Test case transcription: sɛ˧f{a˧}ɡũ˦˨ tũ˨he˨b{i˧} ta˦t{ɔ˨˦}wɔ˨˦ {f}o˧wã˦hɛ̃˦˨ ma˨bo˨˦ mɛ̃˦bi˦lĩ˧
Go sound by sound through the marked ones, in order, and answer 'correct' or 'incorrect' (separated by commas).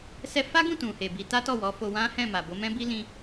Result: incorrect, incorrect, incorrect, correct